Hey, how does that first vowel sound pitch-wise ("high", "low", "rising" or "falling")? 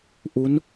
rising